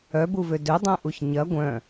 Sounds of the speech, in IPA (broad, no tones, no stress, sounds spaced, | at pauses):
œ b u v ø d ø dˤ œ̃ ʔ u ç ɲ ɐ ɡʷ œ̃